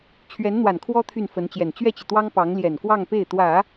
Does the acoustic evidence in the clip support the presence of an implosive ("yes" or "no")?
no